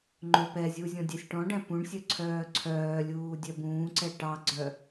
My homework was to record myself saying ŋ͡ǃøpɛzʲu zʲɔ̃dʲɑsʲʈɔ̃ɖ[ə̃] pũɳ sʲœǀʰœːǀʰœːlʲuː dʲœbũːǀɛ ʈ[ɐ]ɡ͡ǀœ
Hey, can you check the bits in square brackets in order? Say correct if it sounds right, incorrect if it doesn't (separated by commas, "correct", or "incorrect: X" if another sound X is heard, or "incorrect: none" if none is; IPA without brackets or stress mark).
incorrect: æ̃, incorrect: ɑ